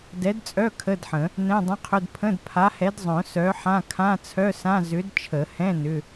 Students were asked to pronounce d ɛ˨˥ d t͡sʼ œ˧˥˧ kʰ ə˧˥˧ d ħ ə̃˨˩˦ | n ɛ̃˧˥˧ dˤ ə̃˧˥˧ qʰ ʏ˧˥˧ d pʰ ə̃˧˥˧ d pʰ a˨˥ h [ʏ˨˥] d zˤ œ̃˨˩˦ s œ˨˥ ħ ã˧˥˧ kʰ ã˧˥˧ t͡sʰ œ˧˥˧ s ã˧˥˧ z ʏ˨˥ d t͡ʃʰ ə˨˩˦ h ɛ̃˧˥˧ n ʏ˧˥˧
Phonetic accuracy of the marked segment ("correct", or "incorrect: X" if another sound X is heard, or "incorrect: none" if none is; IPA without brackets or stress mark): incorrect: ɛ˨˥